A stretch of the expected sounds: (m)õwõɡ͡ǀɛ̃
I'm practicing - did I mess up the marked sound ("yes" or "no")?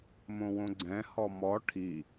no